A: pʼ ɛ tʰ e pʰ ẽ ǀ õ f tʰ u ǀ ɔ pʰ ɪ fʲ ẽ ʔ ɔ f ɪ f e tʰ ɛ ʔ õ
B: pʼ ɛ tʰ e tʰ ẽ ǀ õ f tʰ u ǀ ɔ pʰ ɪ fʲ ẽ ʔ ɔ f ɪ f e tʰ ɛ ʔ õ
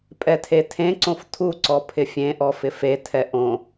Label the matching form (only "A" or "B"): B